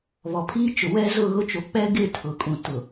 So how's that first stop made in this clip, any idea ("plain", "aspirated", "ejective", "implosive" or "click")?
aspirated